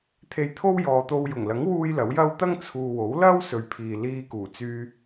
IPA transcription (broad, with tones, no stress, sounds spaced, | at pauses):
t̪ʰ e˧ j t̪ʰ o˥ w j ɔː˨ t̪ o˧ w j ʊ˨˩ ŋ l ɐ˨˥ ŋ w uː˧ j l ɐ˨˥ w j ɐ˥ w t̪ ɐ˥ ŋ t͡sʰ uː˨ w o˨˥ w l ɐ˥ w s ɵ˨ ɥ pʰ iː˨ l iː˧ k uː˨˩ t͡s yː˧